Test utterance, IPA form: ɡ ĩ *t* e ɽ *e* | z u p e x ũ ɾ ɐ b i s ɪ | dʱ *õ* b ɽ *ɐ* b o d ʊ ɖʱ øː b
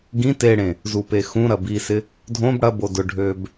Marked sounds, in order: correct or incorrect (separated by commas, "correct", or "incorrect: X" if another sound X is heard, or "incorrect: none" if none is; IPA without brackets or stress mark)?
correct, incorrect: ẽ, correct, correct